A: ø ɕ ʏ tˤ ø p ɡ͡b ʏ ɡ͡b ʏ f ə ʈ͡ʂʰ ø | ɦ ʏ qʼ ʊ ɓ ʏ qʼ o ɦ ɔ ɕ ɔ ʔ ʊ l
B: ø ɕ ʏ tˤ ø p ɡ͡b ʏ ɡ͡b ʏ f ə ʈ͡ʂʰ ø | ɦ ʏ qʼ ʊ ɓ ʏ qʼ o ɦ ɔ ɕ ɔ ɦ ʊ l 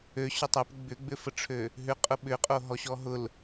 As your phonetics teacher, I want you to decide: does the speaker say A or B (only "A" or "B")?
B